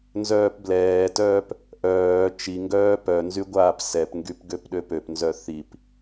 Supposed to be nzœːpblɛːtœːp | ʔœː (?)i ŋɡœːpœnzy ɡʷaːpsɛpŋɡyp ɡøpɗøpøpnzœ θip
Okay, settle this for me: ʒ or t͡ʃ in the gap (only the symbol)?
t͡ʃ